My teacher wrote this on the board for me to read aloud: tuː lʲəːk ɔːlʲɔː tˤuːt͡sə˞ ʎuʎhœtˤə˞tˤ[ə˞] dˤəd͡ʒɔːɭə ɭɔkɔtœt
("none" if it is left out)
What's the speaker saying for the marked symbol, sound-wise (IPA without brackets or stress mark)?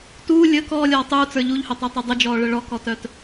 ə˞